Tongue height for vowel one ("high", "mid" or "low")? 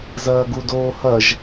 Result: low